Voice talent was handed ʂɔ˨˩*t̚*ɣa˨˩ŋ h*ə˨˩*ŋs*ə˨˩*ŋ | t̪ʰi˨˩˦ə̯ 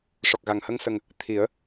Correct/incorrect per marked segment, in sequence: incorrect: k̚, incorrect: ə˧, correct

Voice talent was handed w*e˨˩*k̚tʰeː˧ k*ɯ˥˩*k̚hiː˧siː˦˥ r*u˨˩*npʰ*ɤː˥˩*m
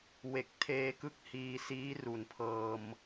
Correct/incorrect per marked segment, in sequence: correct, correct, incorrect: u˩˦, incorrect: ɤː˧

